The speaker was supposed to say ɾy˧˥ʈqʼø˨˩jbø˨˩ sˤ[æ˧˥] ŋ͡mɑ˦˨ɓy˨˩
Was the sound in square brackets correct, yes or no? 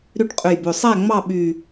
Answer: no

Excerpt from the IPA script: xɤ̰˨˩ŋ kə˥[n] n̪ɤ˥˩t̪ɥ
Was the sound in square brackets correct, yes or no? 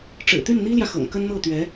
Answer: yes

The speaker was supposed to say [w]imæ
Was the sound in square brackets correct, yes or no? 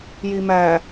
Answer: no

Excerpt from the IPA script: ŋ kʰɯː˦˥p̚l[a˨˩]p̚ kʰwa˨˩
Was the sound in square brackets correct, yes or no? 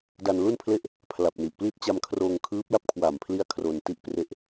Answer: no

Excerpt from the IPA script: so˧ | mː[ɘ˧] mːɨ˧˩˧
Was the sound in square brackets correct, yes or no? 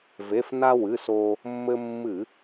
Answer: yes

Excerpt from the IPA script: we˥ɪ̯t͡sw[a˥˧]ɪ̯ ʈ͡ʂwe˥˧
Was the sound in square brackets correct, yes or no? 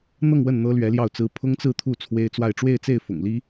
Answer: yes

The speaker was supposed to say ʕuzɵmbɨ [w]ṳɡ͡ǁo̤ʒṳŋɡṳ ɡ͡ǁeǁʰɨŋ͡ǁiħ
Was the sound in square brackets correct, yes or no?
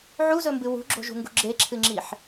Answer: yes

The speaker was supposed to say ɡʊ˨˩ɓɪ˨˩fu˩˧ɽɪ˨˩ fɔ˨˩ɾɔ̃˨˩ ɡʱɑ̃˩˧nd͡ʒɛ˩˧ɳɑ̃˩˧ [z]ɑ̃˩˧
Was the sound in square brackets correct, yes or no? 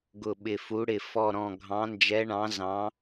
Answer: yes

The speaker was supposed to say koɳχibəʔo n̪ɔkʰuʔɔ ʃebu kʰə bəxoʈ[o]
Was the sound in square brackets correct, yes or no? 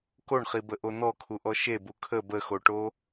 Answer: yes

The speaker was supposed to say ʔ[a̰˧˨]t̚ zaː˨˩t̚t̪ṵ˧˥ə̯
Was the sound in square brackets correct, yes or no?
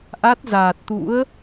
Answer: no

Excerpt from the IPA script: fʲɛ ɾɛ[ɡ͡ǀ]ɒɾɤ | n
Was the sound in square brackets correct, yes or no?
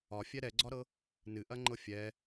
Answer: yes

